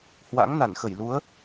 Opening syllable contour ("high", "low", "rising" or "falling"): rising